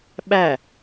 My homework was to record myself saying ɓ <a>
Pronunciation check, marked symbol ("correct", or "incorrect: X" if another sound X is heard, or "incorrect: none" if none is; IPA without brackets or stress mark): incorrect: æ